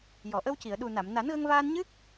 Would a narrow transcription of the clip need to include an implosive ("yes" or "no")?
yes